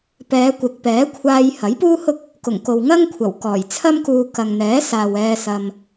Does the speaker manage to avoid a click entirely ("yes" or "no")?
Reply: yes